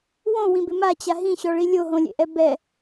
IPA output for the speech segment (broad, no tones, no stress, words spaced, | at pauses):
wõwĩbɪ mat͡ɕa ɦĩɕɔɭi lʲoɦõlʲḛʔɛ bɛ